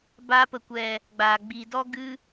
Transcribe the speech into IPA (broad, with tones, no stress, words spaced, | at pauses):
ba˧pə˨kʷɛ˨ | ɡ͡baː˨ɡ͡bi˨dɔ˦ ɡɨ˧